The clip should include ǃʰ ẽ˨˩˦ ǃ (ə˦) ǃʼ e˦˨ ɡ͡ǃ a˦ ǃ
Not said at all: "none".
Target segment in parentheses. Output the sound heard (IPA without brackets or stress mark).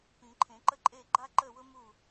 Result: ə˦